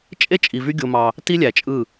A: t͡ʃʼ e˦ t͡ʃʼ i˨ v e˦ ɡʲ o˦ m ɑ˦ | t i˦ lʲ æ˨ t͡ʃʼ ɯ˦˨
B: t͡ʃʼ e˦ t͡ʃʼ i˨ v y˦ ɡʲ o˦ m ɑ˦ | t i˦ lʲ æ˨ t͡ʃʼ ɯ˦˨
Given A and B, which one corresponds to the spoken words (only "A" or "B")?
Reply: B